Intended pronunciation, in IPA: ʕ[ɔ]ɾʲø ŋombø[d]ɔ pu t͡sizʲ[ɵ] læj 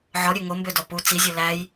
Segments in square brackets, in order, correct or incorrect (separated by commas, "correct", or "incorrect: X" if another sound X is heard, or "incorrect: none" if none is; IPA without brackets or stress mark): correct, correct, correct